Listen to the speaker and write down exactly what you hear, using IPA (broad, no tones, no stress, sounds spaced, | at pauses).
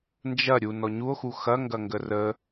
n d͡ʒ ɐ ɾʲ u n ɔ ɲ u o̯ x u x ɐ ŋ ɡ ɐ ŋ ɡ ə r ə